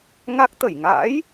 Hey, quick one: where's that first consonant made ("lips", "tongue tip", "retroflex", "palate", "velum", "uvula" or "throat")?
velum